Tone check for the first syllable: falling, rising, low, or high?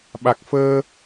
low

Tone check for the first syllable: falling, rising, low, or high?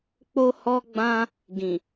high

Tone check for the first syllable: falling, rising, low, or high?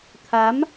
rising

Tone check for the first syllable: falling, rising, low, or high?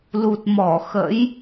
low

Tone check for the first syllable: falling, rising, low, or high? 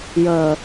low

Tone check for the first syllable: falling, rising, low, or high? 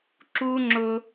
high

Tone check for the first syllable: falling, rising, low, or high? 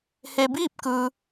low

